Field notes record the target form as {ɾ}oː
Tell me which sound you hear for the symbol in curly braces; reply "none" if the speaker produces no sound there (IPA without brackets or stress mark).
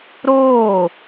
ɾ